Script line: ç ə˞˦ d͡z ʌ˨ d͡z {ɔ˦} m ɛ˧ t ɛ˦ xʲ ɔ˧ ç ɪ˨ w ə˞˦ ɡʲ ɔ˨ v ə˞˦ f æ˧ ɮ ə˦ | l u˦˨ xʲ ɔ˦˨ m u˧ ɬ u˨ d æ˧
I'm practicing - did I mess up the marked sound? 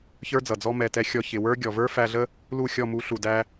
no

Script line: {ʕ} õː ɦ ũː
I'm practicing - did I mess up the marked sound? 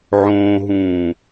no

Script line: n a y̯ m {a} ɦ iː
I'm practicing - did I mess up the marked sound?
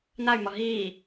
yes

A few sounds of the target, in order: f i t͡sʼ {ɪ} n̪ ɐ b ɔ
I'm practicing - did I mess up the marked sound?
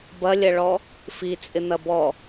no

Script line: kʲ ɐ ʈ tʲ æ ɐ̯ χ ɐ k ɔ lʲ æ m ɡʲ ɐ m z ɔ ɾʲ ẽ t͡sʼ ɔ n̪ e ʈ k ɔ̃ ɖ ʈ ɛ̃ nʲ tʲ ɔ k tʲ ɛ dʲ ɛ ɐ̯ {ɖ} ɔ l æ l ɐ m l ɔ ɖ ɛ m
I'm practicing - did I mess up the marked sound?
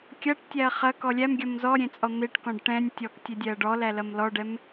no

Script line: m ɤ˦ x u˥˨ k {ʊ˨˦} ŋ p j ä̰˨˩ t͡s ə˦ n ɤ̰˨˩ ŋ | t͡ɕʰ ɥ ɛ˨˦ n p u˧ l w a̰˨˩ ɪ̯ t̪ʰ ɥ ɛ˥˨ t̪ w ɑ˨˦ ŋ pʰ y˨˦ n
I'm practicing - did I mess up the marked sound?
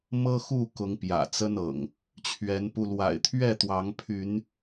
no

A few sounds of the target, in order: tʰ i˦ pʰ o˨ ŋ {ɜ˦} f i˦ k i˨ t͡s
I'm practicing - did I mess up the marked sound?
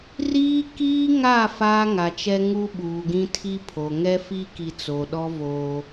yes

